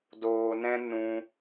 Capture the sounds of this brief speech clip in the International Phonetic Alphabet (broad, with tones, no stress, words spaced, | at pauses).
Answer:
doː˧nɛ̃˦ nũ˧